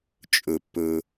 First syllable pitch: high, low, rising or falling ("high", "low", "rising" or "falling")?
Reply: low